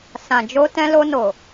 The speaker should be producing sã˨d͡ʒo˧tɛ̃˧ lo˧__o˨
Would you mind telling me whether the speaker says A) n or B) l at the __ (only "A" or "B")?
A